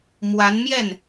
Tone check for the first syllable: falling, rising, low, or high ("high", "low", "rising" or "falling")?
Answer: rising